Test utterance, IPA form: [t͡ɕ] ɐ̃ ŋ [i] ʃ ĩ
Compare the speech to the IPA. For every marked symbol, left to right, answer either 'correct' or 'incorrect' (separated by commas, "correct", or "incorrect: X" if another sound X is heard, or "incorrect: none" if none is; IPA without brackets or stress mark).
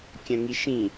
incorrect: kʲ, correct